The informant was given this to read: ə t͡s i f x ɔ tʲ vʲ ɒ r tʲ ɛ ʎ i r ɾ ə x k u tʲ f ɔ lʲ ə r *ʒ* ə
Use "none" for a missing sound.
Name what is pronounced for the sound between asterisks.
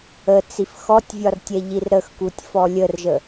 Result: ʒ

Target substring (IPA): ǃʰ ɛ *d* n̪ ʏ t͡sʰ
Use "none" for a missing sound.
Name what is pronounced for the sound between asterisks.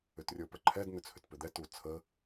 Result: d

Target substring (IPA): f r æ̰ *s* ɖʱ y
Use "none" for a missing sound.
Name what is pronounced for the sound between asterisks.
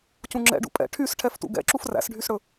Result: s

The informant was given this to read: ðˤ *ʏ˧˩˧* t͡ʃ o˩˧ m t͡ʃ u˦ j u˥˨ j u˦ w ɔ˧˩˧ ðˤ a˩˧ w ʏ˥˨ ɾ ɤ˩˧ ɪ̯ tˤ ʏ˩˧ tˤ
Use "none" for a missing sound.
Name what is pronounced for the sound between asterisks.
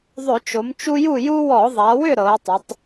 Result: ʏ˧˩˧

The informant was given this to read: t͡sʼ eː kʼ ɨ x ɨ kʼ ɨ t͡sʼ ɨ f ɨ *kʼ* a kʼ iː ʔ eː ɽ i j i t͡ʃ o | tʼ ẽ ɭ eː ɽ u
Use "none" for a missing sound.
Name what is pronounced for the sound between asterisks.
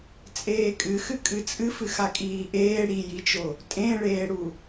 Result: x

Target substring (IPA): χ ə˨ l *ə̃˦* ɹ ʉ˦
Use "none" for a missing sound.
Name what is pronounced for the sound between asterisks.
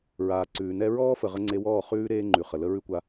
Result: ə˦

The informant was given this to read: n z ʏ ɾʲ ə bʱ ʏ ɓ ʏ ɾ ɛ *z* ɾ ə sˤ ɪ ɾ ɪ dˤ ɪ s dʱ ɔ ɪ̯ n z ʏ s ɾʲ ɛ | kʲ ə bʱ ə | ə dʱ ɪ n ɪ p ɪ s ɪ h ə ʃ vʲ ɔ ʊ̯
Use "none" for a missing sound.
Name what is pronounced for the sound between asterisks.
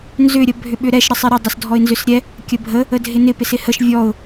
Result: ʃ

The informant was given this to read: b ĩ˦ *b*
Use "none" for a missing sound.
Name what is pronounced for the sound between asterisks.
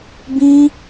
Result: none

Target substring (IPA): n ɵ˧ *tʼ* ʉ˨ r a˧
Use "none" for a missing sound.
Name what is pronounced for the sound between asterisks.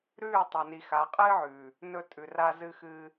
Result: tʼ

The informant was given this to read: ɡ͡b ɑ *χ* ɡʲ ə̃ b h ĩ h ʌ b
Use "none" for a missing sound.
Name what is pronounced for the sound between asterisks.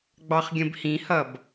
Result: χ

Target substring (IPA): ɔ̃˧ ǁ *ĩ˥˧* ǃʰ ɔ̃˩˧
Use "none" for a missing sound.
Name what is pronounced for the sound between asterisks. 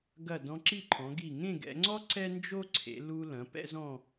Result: i˥˧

